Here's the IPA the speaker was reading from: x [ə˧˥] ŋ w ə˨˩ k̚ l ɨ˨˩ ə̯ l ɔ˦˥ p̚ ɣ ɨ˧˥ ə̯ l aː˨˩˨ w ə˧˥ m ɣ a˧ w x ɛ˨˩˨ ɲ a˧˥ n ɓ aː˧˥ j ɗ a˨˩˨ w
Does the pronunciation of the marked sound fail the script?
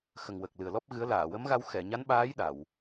yes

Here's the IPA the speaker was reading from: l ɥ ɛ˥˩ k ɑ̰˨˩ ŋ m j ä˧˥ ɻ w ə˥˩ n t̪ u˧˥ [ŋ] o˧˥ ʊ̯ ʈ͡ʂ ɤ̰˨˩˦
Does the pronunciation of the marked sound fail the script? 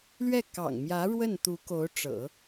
yes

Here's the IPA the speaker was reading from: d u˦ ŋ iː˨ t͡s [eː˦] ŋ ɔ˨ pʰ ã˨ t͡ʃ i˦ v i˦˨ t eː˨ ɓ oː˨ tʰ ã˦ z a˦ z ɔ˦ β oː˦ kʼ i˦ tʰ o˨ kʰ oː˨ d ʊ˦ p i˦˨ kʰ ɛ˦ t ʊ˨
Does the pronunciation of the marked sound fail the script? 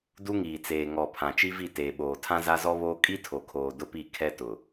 yes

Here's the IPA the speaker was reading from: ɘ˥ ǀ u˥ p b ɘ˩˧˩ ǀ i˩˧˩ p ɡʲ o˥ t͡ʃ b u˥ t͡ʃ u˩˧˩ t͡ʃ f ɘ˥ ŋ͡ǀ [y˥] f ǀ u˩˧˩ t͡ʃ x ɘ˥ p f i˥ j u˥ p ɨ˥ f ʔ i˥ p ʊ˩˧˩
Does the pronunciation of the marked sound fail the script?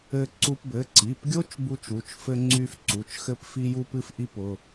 no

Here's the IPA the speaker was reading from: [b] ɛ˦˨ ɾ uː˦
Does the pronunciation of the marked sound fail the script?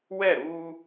yes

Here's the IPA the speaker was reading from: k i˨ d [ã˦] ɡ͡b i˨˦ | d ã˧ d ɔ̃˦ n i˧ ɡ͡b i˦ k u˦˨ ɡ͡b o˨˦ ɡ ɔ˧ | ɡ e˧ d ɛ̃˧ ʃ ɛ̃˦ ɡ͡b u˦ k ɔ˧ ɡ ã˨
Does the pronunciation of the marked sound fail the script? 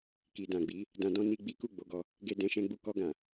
yes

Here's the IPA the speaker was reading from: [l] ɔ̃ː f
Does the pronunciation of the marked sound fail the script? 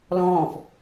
no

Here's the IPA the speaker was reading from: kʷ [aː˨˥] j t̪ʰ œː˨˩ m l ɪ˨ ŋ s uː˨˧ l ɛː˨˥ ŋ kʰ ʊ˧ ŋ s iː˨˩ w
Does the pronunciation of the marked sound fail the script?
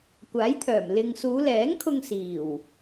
no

